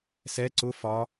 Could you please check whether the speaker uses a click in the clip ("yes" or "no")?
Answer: yes